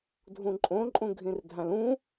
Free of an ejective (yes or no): no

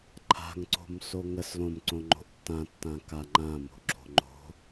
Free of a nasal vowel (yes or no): no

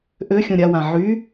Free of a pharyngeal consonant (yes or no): no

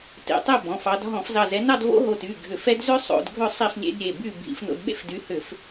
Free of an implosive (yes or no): no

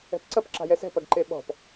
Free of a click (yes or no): no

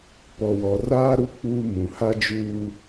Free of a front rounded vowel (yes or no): yes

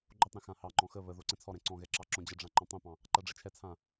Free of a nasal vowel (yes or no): no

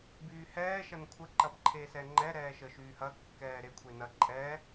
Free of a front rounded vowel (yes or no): no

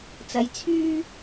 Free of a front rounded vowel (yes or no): no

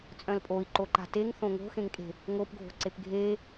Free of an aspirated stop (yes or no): yes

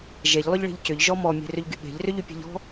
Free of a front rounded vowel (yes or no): no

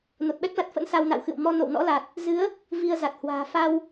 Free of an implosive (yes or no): no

